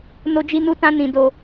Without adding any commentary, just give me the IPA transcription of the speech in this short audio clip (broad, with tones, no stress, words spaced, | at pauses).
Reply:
no˦d͡ʒi˦nu˦tã˦ nĩ˧do˧